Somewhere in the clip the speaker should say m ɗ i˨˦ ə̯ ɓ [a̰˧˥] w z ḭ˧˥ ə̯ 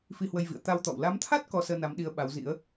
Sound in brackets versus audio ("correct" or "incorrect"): incorrect